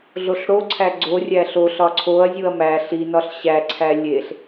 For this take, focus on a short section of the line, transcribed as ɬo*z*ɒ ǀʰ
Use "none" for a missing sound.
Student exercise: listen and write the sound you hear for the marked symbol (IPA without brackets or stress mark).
ɬ